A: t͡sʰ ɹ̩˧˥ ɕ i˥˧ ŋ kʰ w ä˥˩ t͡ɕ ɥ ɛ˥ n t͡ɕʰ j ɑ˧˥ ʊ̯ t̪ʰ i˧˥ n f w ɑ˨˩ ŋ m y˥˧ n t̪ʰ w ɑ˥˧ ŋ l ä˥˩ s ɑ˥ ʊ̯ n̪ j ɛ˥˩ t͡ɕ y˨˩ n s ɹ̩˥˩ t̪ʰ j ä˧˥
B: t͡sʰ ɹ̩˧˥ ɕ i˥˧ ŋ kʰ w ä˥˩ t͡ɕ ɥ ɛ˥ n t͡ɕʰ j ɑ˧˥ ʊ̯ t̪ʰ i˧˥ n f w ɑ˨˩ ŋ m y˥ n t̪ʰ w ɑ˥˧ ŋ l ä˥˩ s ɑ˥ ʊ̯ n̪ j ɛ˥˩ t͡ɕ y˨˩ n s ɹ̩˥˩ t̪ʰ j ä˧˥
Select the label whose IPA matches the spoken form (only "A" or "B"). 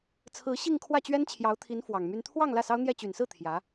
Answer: B